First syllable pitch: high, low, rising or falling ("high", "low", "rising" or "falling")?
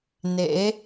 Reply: rising